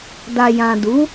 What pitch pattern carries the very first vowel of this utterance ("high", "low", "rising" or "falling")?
low